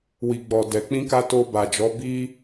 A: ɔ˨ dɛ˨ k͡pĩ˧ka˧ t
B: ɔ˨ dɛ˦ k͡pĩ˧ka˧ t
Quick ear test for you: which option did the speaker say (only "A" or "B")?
A